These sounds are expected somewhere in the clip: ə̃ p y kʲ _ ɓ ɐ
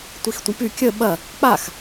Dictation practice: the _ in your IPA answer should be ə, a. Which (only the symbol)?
ə